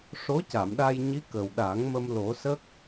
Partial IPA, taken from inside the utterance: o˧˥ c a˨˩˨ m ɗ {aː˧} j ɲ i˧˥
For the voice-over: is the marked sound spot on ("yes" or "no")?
no